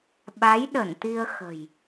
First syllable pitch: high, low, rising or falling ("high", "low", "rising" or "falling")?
rising